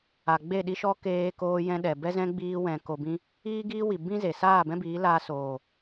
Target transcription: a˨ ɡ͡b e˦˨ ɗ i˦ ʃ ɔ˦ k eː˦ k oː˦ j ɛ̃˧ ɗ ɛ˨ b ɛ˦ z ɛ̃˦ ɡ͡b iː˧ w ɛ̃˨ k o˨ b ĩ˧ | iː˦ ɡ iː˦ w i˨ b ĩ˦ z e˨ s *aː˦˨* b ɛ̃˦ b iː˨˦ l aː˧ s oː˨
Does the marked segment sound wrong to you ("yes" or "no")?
no